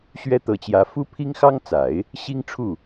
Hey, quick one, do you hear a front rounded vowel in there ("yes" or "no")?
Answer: no